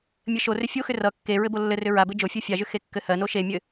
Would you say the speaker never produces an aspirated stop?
yes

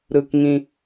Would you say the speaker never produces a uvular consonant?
yes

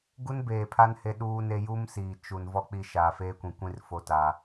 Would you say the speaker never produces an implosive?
no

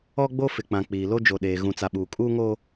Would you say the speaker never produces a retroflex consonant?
yes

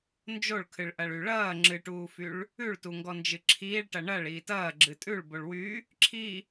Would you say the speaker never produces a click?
no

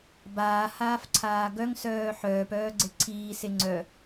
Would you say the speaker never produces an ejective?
yes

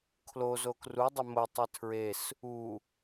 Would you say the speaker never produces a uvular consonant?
yes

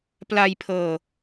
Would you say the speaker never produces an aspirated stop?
no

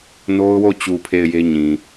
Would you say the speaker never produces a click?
yes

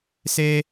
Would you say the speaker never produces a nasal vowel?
yes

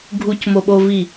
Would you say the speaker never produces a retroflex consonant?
yes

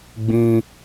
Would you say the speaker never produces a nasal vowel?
no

